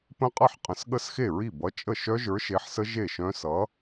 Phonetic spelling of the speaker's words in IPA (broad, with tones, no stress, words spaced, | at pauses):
pə̃˦˥qʼʌ˥˩ħqʼə̃˨˩˦s ɠə˦˥sxe˥˩ɹi˥˩ bʌ˨˥t͡ʃʼə˥˩ ʃœ˦˥ʒə˞˨˥ʃe˨˥ħsə˦˥ ʒe˥˩ʃœ̃˦˥ sʌ˨˥